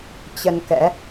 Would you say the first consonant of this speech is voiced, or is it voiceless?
voiceless